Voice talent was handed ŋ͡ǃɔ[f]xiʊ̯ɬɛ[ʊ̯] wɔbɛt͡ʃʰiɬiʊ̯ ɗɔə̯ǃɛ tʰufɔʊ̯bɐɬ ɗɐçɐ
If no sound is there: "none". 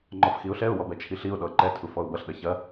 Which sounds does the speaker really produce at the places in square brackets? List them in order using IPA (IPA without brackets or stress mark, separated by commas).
f, ʊ̯